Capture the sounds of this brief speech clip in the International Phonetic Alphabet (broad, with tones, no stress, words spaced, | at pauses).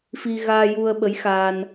fi˧ɣaː˧ju˧ə̯ ɓə˧˥jxaː˧n